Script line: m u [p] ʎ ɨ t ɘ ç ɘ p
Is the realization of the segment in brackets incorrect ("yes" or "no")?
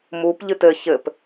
no